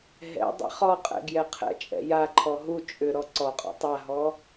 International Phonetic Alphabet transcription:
ɦɛ̰ dˤɛ̰χɔqʼɛ̰ ɡjɛqʰɛ̰t͡ʃʼɛ̰ jaǃʰɔ ɦu t͡ʃʼʏ ɾɔǀɔqʼɔ̰ tˤaɦɔ

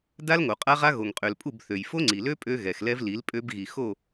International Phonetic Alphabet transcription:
da˦lŋo˨qʼa˦ʁa˦ ɣo˨ŋqʼø˨lpʼu˦˨b θø˨jfo˦ŋ͡ǀi˨lø˦ pʼø˦ɣɛ˨xlɛ˦vli˨˦l pʼø˦bɣi˨ xo˦˨

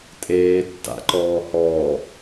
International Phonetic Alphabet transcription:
tʼeːtːa̰ǃɔː hɔː

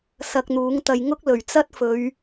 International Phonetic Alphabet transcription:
sɐ˧k̚n̪uː˨˥ŋt̪ɐ˧j ŋʊ˥k̚ lɵ˨˩ɥt͡sɐ˥t̚fɵ˨˧ɥ

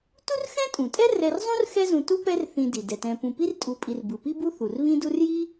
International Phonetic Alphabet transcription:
tu˥rxɛ̃˥tʼũ˩tʼɛ˥ rɛ˦r zˤũ˥rxɛ˦zũ˨ tu˥pɛ˦rθĩ˨ di˩dɛ˩tɛ̃˨ pũ˨pi˥rtʼu˨pʼi˨r bɯ˩pi˦bu˦ θu˩rβĩ˥du˥r ji˥

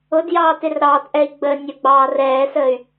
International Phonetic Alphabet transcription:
ʊdjɑː tɪrɾɑːtʔɛi̯ ɡ͡bə nʲəɡ͡bɑː rɛːsəːy̯

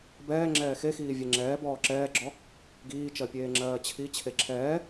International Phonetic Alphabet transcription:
bɛː ŋ͡ǁɛːxexiː vʲeŋ͡ǁɛː bɔːǁɛːɡ͡ǁɔ | ɡiːt͡ʃɜpʲeː ŋ͡ǁɜːt͡ɕʰi t͡ɕʰeǁʰɛː

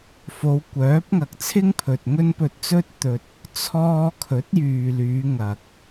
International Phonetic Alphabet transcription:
fo˨˧wkʷœː˨˥p̚ ŋɐ˨k̚t͡sʰɪ˥ŋpʰɵ˨t̚ ŋɵ˥npɵ˧t̚t͡sɵ˥t̚ t̪ɵ˨t̚ | t͡sʰɔː˧ kʰɵ˨˥t̚jyː˨lyː˨˧ ŋɐ˨k̚

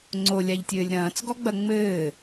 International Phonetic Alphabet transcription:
ŋ͡ǀolʲaʎtʲɘːlʲ ɾɐ̃ːt͡sɡɔɡ͡bɐ ŋ͡mɘː

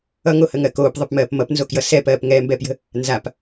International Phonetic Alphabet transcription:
ʌŋohəŋɜ koːpðˤɘpmɜːp mʌpnzokjʌ sɛpɜːp ŋɛːmbɛːpjə̤ | nzap

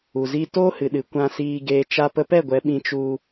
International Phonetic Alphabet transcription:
u˨zi˧ toː˦hɨ˨ɗɨ˨ kʷã˧siː˧ɡeː˧t͡ʃa˦ pə˧pɛ˦˨ɡʷɛ˨˦ ɓĩ˧t͡ʃu˧

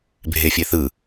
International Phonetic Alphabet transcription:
bʱefʲeθɯ

